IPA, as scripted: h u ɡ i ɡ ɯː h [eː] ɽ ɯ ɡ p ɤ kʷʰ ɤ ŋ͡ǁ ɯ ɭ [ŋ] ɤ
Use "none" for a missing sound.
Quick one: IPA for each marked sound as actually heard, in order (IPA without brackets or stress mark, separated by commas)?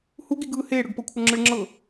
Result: eː, ŋ͡ǁ